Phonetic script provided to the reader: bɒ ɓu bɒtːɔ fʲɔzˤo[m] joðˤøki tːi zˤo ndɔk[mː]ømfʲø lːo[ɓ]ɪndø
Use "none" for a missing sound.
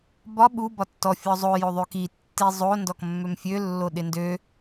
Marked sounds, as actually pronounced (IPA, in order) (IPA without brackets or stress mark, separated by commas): none, mː, ɗ